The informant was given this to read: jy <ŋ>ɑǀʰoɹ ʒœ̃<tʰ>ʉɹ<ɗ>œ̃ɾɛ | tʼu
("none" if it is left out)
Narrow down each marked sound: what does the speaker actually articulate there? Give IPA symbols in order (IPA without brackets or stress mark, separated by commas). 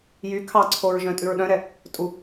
kʰ, tʼ, ɗ